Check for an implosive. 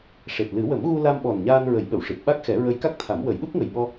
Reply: present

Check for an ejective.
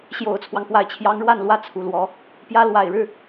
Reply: absent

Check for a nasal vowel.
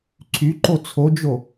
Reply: absent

